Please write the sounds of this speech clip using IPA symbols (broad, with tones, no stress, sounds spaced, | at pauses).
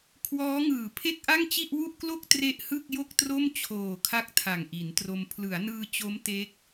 kʰ w ɔː˦˥ ŋ ɯː˨˩ pʰ e˥˩ k̚ ʔ a˥˩ ŋ t͡ɕ i˥˩ ʔ w u˥˩ ʔ k l o˥˩ k̚ t r e˥˩ ʔ h ɯ˥˩ k̚ j o˥˩ k̚ t r o˥˩ m t͡ɕʰ oː˨˩ kʰ a˥˩ k̚ tʰ a˨˩ ŋ ʔ i˩˦ n t r o˧ m pʰ l ɯ˩˦ a̯ n ɯː˧ t͡ɕ o˦˥ m t e˦˥ k̚